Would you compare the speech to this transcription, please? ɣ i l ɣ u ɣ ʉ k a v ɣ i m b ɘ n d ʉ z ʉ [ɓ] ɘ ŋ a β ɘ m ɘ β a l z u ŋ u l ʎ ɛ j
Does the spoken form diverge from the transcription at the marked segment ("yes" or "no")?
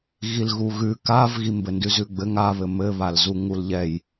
yes